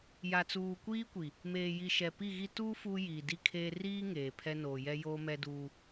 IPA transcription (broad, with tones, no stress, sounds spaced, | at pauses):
j a˨ t͡s uː˨ kʷ iː˦ kʷ i˨ | m eː˨ j i˨ ʃ ɛ˨ p i˦˨ ɣ i˦ t uː˦ f uː˦ j iː˨ d i˦ kʰ eː˦ r iː˦ ŋ eː˨ pʰ ɛ˦ n oː˨ j ɛ˦ j oː˦ m ɛ˦ d uː˦